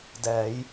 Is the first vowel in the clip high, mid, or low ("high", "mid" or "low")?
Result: mid